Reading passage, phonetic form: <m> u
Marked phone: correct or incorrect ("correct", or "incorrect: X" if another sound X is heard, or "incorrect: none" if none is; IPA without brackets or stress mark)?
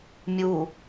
incorrect: mʲ